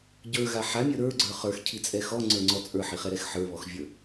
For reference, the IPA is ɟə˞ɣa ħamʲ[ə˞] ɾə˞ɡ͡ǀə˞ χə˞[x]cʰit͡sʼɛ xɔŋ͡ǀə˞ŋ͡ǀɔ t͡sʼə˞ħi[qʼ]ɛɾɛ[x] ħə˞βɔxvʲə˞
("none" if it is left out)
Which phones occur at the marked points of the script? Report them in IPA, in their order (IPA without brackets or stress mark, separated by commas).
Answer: ə˞, x, χ, x